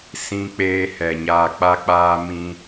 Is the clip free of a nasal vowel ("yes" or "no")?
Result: no